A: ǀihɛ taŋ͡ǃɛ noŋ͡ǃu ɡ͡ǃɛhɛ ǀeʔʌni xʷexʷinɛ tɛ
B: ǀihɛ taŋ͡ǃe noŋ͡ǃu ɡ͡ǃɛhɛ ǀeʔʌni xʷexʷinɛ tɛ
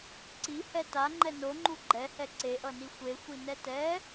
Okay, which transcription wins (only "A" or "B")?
A